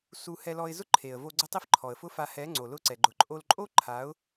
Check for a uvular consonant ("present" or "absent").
absent